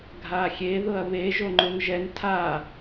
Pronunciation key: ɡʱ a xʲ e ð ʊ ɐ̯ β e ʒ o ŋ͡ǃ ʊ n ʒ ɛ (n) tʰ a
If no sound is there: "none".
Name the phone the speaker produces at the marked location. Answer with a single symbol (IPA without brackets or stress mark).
n